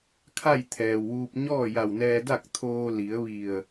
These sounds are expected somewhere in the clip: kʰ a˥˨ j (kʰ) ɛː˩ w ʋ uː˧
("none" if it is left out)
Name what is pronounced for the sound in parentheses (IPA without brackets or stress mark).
t̪ʰ